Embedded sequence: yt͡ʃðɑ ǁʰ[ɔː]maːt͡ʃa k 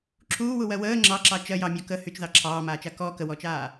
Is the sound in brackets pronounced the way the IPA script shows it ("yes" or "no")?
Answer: no